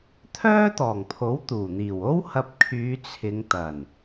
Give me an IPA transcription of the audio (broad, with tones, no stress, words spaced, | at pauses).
t̪ʰœː˥ t̪ɔː˨˩ŋpʰo˨˥wt̪uː˨˩n̪iː˨˩w o˥whɐ˧p̚kʰyː˨˧ t͡sʰɪ˨˧ŋt̪ɐ˨˩n